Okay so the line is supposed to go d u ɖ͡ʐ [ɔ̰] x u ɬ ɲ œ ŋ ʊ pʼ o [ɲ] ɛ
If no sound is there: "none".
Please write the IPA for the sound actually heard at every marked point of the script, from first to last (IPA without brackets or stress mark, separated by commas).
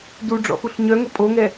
ɔ̰, ŋ